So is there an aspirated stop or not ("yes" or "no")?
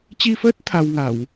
yes